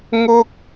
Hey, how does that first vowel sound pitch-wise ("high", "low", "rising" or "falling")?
high